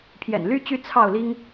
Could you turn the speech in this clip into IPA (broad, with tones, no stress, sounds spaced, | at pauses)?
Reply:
pʰ j ɛ̰˨˩ n l y˦ t͡ɕ y˥˨ t͡sʰ ɑ˥˨ ʊ̯ l i˦ ŋ